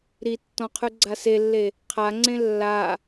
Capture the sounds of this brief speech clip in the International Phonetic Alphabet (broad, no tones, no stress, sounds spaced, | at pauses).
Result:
ɾ i tː ɔ̃ qʰ ʉ ɡ͡ǀ a s e lː e | qʰ a ŋ͡ǀ ẽ lː a